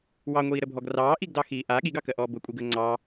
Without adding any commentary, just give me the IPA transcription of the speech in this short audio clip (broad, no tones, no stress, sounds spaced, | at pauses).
w ɑ ŋʷ iː ɾ ə bʱ ɔ ɡ r ɑː ʔ i ɡ d ɑ x iː ʔ a ɠ i ɡ ɑ k ɜ ʔ ɔː b ʊ kʷʼ i ɡ əː ŋ͡ǀ ɑ